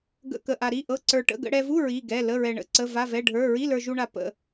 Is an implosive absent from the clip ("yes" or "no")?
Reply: yes